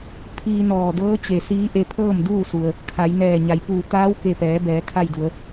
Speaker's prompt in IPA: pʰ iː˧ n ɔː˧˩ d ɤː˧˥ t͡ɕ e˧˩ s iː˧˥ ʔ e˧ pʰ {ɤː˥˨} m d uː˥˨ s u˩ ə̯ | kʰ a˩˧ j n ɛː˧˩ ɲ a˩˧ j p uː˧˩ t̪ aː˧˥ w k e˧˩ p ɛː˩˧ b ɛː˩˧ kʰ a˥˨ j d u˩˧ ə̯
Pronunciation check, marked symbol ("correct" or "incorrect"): correct